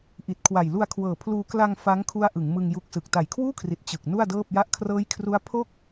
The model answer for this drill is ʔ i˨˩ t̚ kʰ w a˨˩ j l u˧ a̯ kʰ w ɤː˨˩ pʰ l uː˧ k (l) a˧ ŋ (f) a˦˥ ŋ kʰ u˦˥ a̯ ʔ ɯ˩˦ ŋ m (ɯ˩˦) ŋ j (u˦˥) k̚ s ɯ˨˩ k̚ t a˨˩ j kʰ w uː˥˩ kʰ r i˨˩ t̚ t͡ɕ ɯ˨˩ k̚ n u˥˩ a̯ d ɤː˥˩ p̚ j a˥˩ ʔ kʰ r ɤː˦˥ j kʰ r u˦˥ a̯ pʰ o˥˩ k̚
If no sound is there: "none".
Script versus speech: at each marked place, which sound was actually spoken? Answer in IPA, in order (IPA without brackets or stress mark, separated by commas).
l, f, ɯ˧, u˦˥